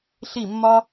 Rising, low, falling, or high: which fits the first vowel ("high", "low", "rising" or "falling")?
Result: falling